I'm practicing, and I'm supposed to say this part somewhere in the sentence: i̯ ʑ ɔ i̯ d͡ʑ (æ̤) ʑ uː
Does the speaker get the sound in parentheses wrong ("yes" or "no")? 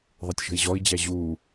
yes